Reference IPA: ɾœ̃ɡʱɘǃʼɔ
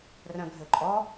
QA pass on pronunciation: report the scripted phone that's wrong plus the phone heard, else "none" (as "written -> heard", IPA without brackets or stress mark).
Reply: ɾ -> r